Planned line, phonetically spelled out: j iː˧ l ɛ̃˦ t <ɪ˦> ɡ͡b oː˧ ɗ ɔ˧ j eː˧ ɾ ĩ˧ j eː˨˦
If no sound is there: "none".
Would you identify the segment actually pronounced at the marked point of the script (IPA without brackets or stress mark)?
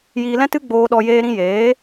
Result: ɨ˦